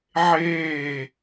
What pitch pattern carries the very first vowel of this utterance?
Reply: falling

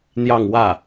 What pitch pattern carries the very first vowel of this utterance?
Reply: falling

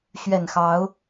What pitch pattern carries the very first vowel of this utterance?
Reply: low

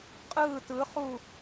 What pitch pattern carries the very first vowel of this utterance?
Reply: falling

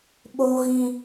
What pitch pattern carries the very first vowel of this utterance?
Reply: low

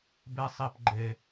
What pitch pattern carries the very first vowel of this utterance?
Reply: high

